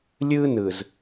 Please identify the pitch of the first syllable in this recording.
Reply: high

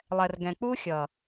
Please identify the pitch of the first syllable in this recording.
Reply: low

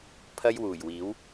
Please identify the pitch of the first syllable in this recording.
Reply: high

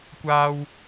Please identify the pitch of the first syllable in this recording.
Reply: high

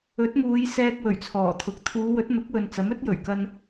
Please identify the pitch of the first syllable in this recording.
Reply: rising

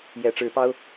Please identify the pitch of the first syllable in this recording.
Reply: rising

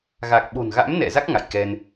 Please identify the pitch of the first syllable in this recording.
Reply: low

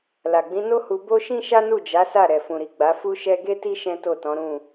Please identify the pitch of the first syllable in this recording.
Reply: low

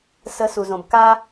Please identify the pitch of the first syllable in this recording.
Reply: rising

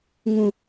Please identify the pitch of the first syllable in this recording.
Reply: low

